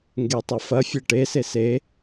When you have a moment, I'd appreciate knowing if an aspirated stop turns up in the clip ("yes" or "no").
no